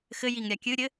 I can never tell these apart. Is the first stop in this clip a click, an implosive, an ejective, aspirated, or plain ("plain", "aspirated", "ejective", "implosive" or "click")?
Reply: plain